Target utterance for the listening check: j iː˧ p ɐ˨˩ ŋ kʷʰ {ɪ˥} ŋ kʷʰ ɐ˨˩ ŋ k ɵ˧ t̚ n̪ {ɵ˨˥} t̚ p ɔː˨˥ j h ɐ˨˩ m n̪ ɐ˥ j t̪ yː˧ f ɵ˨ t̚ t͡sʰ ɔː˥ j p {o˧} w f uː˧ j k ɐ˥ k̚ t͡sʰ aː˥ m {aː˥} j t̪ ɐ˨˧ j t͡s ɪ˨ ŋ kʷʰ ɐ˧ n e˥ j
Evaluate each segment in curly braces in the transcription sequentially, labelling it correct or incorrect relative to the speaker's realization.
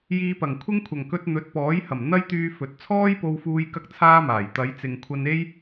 correct, correct, correct, incorrect

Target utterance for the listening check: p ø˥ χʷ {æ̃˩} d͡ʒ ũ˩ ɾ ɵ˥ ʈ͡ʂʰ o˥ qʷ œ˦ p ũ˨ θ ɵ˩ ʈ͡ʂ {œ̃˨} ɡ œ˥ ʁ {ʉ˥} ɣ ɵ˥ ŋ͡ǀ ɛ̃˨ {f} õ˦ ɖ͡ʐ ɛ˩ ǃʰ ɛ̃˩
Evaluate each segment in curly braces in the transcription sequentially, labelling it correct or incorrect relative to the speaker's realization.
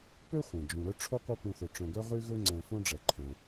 incorrect, correct, correct, correct

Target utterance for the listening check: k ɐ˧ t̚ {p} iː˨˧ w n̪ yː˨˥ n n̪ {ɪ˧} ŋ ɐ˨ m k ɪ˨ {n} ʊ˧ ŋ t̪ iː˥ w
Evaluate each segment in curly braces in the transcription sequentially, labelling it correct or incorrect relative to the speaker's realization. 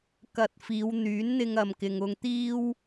incorrect, correct, incorrect

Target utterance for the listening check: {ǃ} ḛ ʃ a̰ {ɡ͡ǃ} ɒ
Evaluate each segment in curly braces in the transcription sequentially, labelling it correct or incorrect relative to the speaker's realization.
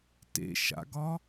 incorrect, incorrect

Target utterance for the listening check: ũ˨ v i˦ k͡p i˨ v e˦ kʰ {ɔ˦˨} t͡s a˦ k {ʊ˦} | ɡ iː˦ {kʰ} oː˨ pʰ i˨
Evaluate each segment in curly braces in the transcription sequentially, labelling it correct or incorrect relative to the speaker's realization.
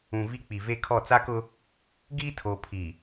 correct, correct, incorrect

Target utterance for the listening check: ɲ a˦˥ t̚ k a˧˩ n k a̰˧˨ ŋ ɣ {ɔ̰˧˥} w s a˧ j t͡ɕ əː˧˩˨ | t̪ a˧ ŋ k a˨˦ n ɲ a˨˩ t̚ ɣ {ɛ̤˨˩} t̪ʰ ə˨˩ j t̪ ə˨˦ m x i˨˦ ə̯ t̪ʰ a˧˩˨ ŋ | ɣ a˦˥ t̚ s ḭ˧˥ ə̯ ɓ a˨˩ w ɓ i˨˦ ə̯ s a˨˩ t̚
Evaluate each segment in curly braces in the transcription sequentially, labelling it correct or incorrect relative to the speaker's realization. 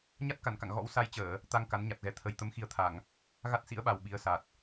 correct, incorrect

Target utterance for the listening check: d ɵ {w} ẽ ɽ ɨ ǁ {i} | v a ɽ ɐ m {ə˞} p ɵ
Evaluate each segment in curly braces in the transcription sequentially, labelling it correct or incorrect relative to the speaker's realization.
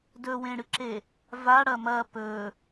correct, incorrect, incorrect

